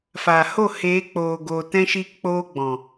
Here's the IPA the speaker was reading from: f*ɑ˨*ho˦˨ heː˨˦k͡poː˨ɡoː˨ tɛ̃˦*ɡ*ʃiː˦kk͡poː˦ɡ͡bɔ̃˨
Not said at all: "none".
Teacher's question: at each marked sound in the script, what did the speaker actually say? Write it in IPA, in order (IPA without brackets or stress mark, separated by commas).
a˨, none